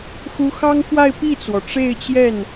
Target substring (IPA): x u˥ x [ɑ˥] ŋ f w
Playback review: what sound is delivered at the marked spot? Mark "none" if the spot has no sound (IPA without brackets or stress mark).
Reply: ɑ˥